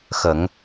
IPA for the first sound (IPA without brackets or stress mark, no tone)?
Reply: x